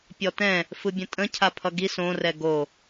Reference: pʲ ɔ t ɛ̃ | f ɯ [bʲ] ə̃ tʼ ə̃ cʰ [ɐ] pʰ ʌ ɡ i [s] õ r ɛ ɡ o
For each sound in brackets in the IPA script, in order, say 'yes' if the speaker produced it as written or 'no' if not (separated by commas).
yes, no, yes